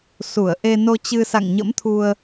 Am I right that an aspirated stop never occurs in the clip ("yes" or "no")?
no